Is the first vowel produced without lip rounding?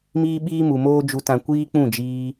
yes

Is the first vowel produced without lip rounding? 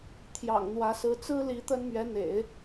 yes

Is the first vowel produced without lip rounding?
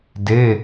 yes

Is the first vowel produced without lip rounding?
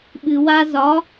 yes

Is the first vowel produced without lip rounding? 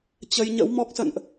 yes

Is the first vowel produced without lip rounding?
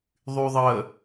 no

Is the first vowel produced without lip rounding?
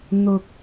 no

